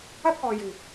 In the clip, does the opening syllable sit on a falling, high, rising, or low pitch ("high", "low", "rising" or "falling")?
high